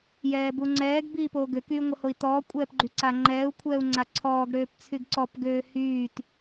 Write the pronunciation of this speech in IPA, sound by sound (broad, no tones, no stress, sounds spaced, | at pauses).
j ɛː b u ŋ͡ǀ ɛː ɡ b iː p oː ɡ ø k yː ŋʷ ə h o i̯ t ɔː kʷʼ ɛː p ɡ͡ǃ y ǀ a ŋ͡ǃ ɛː u̯ kʷʰ ɛː u̯ ŋ͡ǀ a ǀʰ ɔː ɡ ɽ øː p t͡sʰ y ɡ ǀ ɔ p ɡ øː h yː t